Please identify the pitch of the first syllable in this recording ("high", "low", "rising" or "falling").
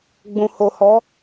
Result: low